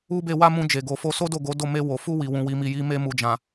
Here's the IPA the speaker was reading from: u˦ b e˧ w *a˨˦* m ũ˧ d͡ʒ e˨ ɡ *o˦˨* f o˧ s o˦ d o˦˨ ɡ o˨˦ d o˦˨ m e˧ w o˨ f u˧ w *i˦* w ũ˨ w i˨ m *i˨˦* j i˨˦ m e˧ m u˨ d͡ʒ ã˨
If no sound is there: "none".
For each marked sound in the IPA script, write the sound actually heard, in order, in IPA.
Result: a˦, o˨, i˨, i˨

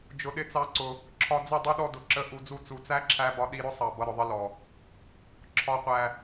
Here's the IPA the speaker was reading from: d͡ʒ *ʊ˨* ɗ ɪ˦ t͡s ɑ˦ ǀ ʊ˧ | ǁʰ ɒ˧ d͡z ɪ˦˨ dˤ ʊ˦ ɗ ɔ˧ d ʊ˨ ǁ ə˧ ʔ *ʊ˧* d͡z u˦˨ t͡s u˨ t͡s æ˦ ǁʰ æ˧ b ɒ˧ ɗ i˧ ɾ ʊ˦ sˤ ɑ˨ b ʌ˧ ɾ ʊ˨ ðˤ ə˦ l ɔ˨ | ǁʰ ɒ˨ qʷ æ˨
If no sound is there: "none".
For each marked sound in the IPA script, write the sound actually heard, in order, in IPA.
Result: ʊ˧, u˧

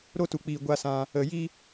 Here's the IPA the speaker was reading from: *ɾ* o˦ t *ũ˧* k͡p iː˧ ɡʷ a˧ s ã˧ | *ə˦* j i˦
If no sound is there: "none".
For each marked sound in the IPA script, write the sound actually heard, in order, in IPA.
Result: ɾ, u˧, ə˧

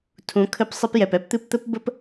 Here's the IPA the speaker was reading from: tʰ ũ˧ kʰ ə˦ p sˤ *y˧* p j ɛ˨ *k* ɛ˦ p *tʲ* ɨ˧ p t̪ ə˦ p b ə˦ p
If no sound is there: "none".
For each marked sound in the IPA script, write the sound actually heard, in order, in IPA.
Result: ɨ˧, p, t̪

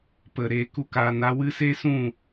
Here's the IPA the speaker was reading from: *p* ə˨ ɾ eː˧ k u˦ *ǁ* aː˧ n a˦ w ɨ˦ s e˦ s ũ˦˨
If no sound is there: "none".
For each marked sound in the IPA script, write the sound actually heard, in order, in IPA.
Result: p, k

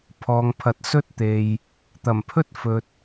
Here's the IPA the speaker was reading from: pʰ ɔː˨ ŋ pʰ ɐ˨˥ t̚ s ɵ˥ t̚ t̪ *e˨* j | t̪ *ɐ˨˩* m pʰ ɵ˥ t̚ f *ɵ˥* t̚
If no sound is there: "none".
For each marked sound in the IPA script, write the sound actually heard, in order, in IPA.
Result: e˨, ɐ˨˩, ɵ˨

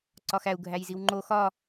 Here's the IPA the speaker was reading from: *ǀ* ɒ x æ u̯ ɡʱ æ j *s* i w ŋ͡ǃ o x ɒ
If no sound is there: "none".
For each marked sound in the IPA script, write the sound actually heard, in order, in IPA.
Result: ǀ, z

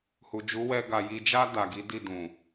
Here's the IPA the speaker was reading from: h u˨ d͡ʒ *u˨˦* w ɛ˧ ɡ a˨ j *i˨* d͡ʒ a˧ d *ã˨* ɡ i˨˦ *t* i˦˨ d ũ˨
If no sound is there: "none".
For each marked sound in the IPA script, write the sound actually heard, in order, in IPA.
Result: u˨˦, i˨, a˨, d

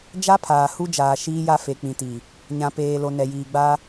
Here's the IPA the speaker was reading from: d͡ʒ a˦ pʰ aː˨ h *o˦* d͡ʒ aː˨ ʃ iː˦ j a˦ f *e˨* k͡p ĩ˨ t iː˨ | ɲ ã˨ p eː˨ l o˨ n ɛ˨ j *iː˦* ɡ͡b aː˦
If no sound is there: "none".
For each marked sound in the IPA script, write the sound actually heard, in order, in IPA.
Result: u˦, e˨, iː˨

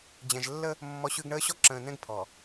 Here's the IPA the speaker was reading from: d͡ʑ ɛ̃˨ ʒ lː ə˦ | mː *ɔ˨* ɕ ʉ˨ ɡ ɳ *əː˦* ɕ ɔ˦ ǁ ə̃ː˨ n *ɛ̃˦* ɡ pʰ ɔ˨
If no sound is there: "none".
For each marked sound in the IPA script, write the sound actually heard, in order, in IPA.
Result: ɔ˨, əː˦, ɛ̃˦

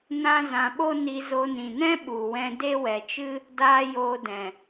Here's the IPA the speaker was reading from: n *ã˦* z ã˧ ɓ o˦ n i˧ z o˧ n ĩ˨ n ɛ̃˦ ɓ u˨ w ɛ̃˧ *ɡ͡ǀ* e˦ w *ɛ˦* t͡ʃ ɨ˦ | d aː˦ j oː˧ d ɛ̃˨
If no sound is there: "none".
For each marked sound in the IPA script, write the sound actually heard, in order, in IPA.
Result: ã˦, d, ɛ˨

